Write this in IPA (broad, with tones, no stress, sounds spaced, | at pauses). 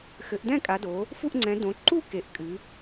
x ɘ˨˦ ʔ d ɛ̃˥˧ kʼ a˨˦ d o˨˦ | f u˥˧ ʔ ŋ͡ǀ ɛ̃˨˦ d õ˨˦ ǃ u˥˧ k e˨˦ ʔ kʼ ɨ˨˦